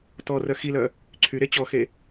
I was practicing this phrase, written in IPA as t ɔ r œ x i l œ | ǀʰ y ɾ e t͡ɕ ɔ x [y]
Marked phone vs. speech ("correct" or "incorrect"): incorrect